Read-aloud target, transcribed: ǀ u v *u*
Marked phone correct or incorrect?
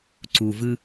incorrect